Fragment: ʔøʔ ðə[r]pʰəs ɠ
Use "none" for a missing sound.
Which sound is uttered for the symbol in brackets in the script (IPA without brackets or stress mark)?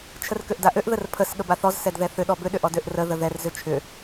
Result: r